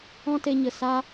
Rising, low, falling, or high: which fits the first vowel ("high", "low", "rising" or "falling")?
high